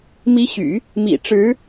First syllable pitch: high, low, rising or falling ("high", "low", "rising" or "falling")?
rising